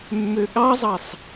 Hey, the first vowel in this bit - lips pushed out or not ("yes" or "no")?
yes